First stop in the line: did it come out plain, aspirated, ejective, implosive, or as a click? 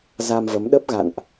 implosive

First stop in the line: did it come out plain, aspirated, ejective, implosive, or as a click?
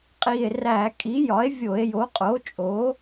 ejective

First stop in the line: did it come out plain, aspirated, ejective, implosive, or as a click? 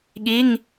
implosive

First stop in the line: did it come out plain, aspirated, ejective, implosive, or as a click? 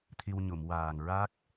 aspirated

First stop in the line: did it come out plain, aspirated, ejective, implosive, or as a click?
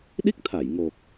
implosive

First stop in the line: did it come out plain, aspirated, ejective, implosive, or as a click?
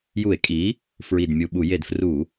ejective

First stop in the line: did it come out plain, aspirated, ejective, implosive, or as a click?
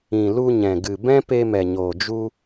plain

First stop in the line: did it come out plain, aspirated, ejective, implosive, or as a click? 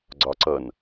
click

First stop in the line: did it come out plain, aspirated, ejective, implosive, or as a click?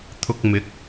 aspirated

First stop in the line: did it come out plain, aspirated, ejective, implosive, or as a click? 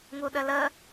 implosive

